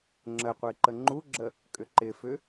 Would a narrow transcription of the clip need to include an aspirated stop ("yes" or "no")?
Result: no